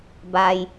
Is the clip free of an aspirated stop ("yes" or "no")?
yes